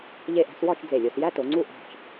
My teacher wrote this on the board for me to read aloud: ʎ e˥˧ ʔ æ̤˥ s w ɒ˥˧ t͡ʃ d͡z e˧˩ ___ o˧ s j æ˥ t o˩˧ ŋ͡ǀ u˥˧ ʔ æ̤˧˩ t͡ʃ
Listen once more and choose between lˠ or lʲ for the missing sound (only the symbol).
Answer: lʲ